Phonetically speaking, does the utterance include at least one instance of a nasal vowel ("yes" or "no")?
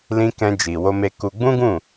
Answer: yes